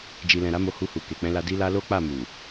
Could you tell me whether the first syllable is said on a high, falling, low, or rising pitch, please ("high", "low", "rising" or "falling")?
low